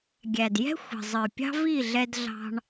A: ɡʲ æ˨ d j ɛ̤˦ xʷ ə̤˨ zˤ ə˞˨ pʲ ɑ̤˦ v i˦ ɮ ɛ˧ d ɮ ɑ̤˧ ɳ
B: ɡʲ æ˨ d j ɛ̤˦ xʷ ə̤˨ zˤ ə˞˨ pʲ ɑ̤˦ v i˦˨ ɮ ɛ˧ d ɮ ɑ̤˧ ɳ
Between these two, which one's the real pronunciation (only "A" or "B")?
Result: B